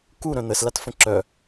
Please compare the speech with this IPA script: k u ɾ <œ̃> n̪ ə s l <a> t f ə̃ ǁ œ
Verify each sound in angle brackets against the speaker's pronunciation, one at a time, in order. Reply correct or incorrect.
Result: correct, correct

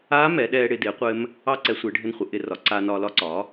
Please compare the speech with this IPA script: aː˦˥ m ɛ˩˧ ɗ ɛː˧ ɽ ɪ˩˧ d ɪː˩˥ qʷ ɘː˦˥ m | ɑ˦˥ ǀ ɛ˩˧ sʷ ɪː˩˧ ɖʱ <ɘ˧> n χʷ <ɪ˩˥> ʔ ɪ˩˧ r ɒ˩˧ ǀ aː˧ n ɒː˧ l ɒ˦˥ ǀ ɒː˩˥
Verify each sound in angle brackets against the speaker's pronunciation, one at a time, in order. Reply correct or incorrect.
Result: correct, correct

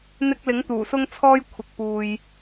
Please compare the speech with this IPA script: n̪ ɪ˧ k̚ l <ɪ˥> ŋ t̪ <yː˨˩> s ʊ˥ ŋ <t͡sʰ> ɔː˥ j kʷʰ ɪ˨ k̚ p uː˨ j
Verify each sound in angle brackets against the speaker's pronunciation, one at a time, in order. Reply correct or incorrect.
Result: incorrect, incorrect, correct

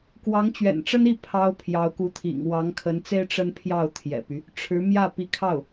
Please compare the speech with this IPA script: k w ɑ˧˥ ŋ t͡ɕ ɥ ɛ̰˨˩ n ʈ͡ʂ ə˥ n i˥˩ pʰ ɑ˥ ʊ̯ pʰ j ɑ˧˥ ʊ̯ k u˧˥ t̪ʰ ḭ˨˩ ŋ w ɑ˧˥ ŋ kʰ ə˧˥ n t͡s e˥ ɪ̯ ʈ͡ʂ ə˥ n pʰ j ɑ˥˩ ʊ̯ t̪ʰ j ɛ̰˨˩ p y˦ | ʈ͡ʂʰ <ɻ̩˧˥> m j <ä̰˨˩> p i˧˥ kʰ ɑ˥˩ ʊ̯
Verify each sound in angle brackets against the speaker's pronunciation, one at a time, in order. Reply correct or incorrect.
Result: correct, incorrect

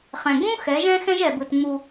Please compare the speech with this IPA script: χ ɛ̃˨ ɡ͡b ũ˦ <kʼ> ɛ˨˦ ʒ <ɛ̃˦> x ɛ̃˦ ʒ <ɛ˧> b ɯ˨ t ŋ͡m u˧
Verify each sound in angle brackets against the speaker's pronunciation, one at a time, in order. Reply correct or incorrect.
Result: incorrect, correct, incorrect

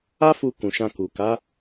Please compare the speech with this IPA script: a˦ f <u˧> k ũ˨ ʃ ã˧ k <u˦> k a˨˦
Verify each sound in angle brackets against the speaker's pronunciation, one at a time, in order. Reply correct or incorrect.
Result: correct, incorrect

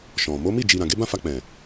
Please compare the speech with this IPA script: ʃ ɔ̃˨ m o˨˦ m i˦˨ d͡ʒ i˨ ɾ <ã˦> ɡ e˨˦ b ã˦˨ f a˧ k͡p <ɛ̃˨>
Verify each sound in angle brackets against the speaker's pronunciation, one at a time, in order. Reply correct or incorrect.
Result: incorrect, correct

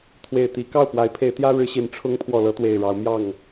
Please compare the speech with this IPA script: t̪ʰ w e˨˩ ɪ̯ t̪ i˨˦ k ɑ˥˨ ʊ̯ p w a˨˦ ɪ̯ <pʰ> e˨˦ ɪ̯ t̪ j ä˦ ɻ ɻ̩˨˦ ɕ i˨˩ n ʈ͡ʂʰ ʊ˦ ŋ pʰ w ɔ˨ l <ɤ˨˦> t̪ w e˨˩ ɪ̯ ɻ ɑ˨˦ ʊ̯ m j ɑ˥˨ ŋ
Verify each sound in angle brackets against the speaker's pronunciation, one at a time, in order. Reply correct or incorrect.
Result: correct, correct

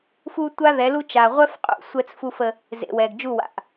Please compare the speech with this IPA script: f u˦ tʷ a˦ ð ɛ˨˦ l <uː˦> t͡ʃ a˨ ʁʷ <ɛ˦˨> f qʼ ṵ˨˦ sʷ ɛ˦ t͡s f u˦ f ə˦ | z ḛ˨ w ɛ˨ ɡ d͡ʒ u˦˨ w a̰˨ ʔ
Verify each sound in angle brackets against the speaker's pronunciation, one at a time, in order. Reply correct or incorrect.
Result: incorrect, incorrect

